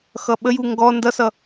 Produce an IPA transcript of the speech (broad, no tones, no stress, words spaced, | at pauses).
xʌɓəju ŋɡɔ ndʌsʌ